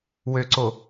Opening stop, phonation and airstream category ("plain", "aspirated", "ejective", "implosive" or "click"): click